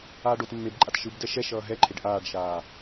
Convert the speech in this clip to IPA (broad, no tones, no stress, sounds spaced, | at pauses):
aː ɖ o t mː e b ǃʼ a t ʃ ɯ b d ɛ ʃ ɛ ʃ ʌː ɦ ɛ ǃʰ e ɖ ʔ aː ɖ ʃ aː